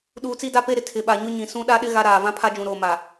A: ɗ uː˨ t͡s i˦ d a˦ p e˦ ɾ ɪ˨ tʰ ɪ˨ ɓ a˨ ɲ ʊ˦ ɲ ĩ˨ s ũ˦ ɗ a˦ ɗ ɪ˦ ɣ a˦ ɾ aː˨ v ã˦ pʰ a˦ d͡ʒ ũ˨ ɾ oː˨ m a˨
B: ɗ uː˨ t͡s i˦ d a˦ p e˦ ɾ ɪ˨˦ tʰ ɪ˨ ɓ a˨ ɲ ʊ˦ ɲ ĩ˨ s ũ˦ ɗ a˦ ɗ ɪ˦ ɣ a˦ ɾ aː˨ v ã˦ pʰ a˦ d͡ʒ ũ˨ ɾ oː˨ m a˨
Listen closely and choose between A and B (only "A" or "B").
A